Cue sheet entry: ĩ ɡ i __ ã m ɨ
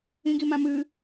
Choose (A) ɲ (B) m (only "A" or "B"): B